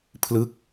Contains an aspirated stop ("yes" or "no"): yes